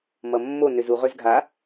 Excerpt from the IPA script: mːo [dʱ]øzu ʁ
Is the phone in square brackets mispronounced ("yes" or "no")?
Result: yes